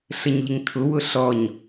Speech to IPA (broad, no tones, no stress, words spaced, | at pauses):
ɬəɲʎɪŋtʰʊ wʊɬɔɲ